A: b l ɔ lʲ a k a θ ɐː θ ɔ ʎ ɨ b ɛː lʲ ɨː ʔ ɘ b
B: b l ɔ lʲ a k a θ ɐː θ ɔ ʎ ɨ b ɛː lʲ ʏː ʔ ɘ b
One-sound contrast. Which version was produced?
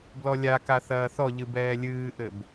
A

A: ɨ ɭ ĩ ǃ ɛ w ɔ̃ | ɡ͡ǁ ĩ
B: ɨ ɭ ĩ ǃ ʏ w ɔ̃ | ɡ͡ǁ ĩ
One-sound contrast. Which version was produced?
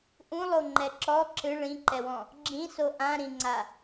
A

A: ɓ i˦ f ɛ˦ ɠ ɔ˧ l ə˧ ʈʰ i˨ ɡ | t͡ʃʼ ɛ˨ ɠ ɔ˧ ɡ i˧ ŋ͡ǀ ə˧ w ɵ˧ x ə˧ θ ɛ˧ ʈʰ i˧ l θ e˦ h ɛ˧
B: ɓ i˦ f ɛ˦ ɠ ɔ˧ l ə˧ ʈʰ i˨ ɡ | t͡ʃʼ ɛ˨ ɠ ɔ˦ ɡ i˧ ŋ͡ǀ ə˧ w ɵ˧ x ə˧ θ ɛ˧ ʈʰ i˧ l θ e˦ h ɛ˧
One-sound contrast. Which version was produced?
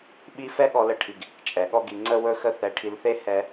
B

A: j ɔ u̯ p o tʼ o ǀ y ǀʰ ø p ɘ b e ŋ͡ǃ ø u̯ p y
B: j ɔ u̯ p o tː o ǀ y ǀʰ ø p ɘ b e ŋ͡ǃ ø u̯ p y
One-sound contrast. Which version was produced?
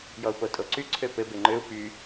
A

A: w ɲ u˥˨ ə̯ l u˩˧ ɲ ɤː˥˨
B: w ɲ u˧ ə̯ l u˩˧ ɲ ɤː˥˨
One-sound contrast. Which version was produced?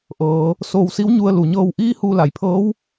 B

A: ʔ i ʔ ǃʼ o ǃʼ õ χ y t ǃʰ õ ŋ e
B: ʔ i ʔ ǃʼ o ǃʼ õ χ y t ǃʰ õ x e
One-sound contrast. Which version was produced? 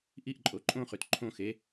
B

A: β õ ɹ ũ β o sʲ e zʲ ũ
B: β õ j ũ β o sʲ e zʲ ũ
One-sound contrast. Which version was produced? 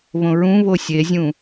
A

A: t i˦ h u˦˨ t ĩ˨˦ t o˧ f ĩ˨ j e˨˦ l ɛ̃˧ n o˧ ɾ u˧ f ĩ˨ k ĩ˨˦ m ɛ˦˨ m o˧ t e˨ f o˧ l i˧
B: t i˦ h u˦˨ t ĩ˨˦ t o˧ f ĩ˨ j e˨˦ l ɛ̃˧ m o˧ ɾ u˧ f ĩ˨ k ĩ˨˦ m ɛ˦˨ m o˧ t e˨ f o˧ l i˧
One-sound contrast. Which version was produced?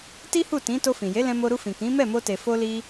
B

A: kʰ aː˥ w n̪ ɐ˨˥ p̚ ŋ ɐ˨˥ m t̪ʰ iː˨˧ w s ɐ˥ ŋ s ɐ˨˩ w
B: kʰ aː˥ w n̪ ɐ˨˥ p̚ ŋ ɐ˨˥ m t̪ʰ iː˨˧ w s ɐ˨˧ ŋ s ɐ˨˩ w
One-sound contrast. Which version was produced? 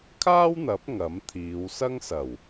A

